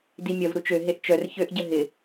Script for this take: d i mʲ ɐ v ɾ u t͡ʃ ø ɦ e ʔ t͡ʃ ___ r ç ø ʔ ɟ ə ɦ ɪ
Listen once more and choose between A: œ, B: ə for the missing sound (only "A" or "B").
A